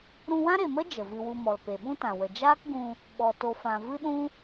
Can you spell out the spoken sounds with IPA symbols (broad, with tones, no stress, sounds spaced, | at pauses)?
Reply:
ɾ ũ˧ w ã˦ ɾ e˨ m ə˦ d͡ʒ ə˨ v ɨ˧ w u˧ m ɔ˨ l p e˨ ɓ ũ˦ t ã˨ w ə˨ d͡ʒ aː˦ k ɡ ũ˧ | ɓ ɔ˨ t o˨ f ã˨ v ɨ˦ ɗ ũ˦